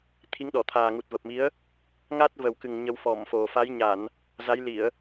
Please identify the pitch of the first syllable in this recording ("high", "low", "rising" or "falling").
rising